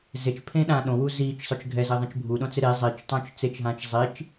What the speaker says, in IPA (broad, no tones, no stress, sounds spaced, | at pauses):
z e t͡ʃ pʰ ẽ ɗ ãː ɗ õ w u z iː t͡ʃ sˤ ʊ t͡ʃ ɡʱ ɛ z e ðˤ ẽ t͡ʃ bʱ u ɗ õ t͡s ɪ ɾ e zˤ i t͡ʃ tˤ õ t͡ʃ t͡s e t͡ʃ ɦ ãː t͡ʃ zˤ i t͡ʃ